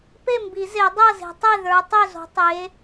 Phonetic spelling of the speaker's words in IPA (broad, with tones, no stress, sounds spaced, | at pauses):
p e˥˨ m b i˨˩˦ z e˨˩˦ dˤ ɤ˥˨ z e̤˨˦ tˤ e˥˨ ð ə˞˨˦ tˤ ø˥˨ z o̤˨˦ tˤ e˨˦